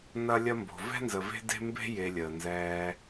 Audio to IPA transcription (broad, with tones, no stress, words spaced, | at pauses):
nɐ˦lʲɐ˦mbo̤˨ vɛ̤˥nzə˨ve̤˦ de̤˥mbe̤˥ je˨lʲəː˩nzɛː˨